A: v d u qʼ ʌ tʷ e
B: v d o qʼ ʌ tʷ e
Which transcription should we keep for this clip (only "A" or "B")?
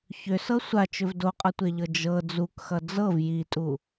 B